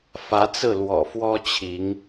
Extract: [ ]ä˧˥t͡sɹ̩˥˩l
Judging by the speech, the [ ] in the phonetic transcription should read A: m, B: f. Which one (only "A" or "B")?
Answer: B